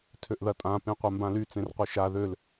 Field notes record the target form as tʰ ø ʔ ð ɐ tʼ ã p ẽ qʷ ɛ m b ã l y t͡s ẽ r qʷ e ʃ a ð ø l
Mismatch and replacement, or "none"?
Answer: none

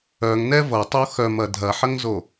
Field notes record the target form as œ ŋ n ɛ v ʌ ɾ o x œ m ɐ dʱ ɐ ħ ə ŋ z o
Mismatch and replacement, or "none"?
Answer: ɾ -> tˤ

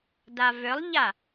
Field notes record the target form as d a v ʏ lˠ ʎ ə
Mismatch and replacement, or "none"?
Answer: ə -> a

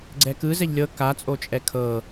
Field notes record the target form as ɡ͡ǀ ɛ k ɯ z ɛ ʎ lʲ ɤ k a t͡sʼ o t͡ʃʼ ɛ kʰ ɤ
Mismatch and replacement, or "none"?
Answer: none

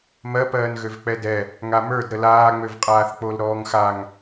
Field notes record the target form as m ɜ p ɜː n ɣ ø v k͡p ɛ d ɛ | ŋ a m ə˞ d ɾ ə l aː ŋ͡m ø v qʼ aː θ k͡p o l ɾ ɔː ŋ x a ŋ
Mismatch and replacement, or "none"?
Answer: none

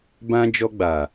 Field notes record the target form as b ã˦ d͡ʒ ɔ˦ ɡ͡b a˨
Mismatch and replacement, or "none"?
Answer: none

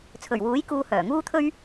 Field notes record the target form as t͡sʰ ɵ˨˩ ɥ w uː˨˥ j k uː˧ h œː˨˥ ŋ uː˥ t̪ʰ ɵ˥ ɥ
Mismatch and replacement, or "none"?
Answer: œː˨˥ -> œː˨˩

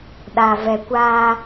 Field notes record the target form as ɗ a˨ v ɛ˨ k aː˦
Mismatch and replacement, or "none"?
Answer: k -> kʷ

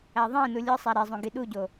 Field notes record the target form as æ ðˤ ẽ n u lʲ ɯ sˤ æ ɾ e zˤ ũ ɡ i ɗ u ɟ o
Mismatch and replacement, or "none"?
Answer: none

